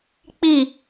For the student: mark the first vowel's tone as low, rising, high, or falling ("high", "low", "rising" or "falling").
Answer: falling